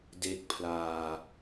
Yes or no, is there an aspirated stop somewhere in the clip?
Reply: yes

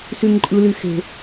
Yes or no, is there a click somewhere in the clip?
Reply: yes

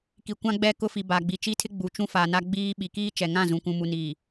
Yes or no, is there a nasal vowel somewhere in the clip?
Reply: yes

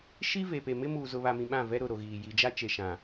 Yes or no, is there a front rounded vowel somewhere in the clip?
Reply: no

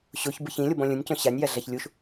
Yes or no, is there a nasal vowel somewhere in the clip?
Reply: yes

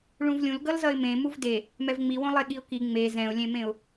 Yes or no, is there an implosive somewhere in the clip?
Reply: yes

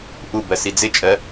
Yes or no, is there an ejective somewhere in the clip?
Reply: yes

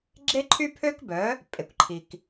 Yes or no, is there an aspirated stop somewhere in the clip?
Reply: yes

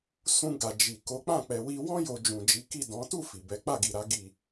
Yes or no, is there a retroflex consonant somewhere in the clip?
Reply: no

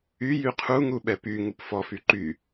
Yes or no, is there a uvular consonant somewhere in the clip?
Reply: yes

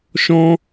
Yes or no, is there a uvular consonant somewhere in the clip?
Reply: no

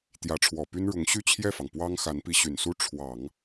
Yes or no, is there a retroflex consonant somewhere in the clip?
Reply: yes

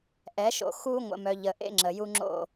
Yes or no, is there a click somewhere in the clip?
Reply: yes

